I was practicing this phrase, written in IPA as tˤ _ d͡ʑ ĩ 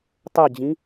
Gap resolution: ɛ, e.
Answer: ɛ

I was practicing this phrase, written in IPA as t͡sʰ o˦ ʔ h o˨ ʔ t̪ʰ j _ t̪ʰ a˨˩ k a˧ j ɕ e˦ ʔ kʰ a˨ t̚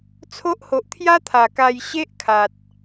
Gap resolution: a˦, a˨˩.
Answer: a˦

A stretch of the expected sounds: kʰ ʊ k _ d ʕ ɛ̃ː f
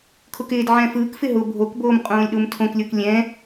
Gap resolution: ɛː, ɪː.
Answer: ɪː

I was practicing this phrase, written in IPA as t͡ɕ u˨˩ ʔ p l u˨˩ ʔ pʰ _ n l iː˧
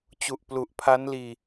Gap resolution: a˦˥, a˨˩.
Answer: a˦˥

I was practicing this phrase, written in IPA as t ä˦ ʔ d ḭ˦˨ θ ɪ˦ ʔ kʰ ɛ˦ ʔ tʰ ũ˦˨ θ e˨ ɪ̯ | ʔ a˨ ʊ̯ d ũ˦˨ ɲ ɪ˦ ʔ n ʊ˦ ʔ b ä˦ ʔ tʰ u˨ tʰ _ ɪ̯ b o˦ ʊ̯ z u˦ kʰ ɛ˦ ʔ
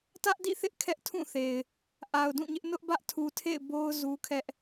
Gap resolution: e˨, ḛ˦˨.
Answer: ḛ˦˨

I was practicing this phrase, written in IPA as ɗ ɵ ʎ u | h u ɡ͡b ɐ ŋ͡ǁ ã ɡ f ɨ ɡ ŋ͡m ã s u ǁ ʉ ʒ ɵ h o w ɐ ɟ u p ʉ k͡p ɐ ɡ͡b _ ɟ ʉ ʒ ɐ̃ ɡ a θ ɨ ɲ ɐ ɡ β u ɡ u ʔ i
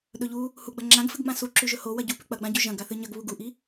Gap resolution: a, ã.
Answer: ã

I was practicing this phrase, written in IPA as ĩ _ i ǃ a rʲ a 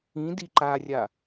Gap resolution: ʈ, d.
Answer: d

